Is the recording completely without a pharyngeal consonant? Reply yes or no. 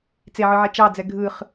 no